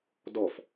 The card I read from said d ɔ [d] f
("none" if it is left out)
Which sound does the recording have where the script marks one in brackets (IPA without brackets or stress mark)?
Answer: none